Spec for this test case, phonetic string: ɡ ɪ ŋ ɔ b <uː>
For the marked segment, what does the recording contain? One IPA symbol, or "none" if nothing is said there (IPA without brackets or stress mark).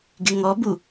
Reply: u